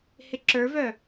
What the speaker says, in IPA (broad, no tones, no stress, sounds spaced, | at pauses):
h ɪ ǁ ə˞ v œ